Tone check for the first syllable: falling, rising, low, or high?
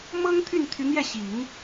high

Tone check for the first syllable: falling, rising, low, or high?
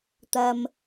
high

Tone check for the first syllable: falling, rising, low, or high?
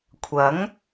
rising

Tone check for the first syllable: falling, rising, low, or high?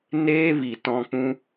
high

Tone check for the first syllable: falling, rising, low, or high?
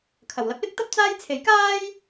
low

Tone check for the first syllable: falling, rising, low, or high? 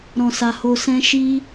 low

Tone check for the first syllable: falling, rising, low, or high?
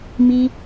high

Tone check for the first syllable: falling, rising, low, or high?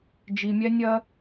low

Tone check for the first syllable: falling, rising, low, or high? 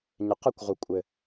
low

